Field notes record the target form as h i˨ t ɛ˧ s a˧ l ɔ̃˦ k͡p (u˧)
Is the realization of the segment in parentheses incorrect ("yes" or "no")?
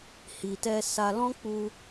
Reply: no